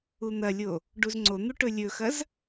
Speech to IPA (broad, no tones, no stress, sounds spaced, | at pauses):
u n̪ ɐ lʲ o | ɖ u z ŋ͡ǀ o n̪ u ʈ ɵ lʲ ɵ x ɐ z